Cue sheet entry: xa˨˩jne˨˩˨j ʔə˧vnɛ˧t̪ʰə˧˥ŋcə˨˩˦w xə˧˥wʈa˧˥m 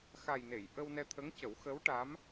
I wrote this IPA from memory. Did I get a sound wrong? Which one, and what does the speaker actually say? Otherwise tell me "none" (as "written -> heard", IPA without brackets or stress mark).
v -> w